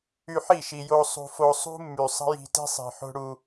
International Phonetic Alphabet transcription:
y˧ħi˦˨ʃi˨jo˧ sˤṳ˧fo˧ sˤṳ˦mːy˨sˤə̤˦ji̤˧ ti̤˦sˤi̤˨ ħo̤˦ɽu˧

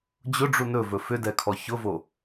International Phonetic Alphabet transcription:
d͡ʑʊɖ͡ʐu nɵvɵ fʏdɛkʰɔ çʊvo

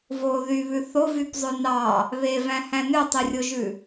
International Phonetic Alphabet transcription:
vo ðyβʉ θovypzˤø nɑ | βevæ̃hæ̃ nøtˤirʲoʒʉ

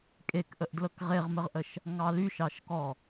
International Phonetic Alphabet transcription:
kʼekʔəʔdlɤk ʁeʁməʁʔəʃ | ŋɑlyʃɑʃkɔ

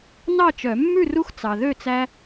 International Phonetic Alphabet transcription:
nɑ˥˨t͡ʃœ˨˩˦ mːʉ˥˨ru˦x t͡sɑ˨ðø˥˨t͡sæ˦

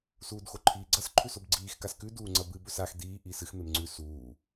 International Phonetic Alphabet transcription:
suːdxoǃʰiːɡ͡ǀɐs ǃʰʉsobɡ͡ǀiːx kaskʉ duːŋ͡ǀɐbɨ bɵsax diː ʔiːsɨx memŋ͡ǀʉ suː

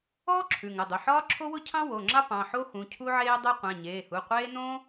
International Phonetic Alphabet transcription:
ɔː˥ ǁʰʉ˩˧˩ŋə˩˧˩dˤʊ˩˧˩ ħɒː˥ǁʰo˥wʊ˥ cʰɑ̃˥wo˩˧˩ŋ͡ǁɑ˥ pɑ̃˩˧˩ħo˥ xũ˩˧˩ cʰu˥ʕeː˥ dˤe˥ qʷã˩˧˩ɲeː˩˧˩hu˩˧˩qʷeː˥ nõ˥

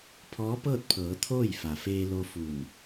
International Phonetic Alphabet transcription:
pʰɔː˧˥pɤː˥˨t̚pʰɤː˩˧ t̪ʰoː˥˨jfa˩ feː˧lo˧ fu˧˩n

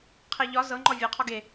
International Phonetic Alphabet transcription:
qʰeʎɒ zɤŋ͡ǃɔ vʲeqʰɔ ɡe

